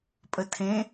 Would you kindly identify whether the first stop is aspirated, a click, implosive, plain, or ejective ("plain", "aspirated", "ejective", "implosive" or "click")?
ejective